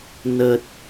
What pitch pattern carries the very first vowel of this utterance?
low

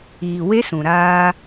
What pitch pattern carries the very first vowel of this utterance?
low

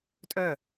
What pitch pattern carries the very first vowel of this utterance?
falling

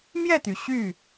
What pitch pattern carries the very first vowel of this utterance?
falling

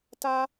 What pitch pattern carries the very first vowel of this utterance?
high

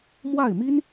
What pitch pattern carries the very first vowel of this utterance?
falling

